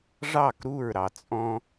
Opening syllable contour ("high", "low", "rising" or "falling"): falling